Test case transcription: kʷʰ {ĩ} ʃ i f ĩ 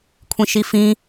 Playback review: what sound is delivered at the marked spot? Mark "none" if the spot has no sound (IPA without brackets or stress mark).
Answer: ĩ